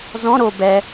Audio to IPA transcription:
zɔ̃ ɾo bɛ

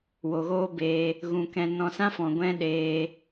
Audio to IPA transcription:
wo˨ɣoː˦beː˧ | ɣũ˨kɛ̃˨ nɔ̃˧sã˦fɔ̃˨ ɡʷɛ̃˦ɗeː˧

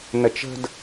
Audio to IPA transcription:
nət͡ʃə̤d

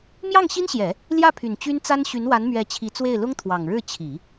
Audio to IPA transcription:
mjɑ˥˩ŋɕi˥nɕjɛ˨˩˦ | ljä˥˩pʰy˨˩n t͡ɕy˥nt͡sa˥n ɕy˧˥nwa˧˥nmɥɛ˧˥ t͡ɕʰi˧˥t͡swe˥˩ɪ̯ lʊ˥ŋt̪ʰwɑ˨˩ŋɻɻ̩˥˩ t͡ɕʰi˨˩˦

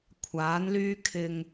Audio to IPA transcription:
kʷʰaː˨˥nlyː˥ kʰɪ˧ŋ

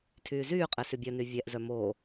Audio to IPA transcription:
tʰyːzyːqʼɛ sybʲœny vʲɛʔzœ moː

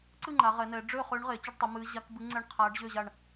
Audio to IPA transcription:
ǀɨ˥˨ ŋ͡ǃa˩˧ʁɛ˩˧nɛ˩˧ ɖ͡ʐø˥˨ χøː˧˥ɳʁeː˩˧t͡ɕɤ˥˨ɖtˤi˩˧ mɨː˧˥ ʑa˧˥kbɨ˧˥ ŋ͡ǀɛ˥˨ɳqʰaː˧˥ɖʑø˥˨ʑa˥˨ɳ

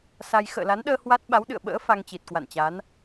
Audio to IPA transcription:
sa˧j xə̰ː˧˨la˨˦nɗəː˧ hwa˦˥t̚ ɓa˨˦wɗɨ̰˧˨ə̯ ɓə̰ː˧˥ fa˧ŋt͡ɕi˨˩t̚kwa̰˧˨nt͡ɕa˨˦n

